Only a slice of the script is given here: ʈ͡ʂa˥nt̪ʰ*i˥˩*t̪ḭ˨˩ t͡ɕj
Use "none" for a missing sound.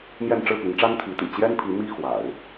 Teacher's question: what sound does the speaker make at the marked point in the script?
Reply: i˧˥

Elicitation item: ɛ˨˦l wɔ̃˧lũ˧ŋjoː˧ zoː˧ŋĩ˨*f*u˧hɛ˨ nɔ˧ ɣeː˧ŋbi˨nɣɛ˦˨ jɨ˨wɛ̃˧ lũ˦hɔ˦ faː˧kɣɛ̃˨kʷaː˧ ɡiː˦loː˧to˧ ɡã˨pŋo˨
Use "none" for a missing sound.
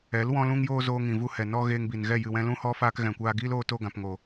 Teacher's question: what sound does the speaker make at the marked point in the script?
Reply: v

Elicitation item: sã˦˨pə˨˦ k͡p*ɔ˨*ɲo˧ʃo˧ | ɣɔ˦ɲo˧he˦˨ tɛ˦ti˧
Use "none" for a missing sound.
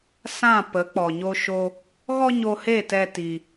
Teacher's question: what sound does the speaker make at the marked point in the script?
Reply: ɔ˨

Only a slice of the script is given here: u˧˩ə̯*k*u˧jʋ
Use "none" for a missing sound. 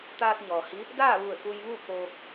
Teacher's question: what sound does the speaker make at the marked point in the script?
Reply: k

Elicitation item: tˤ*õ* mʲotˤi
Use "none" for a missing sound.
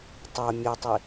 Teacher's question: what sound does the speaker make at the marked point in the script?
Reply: o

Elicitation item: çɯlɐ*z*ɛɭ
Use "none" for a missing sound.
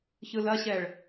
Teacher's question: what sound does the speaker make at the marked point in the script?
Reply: ɕ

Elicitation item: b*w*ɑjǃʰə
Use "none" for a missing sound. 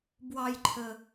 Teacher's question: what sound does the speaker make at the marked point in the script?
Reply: w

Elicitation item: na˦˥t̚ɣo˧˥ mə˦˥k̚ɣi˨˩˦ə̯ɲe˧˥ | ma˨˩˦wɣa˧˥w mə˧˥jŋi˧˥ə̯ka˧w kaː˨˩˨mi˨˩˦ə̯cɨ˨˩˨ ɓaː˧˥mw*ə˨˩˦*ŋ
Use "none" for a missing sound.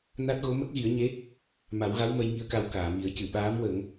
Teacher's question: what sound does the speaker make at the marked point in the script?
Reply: ə˨˩˦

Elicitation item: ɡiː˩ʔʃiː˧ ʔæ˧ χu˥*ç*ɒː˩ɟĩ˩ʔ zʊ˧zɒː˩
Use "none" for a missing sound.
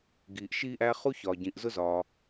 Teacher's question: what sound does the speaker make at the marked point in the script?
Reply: ç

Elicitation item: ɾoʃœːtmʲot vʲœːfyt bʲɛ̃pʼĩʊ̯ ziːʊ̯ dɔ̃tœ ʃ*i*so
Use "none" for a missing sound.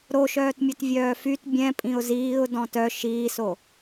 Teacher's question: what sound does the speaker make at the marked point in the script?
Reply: iː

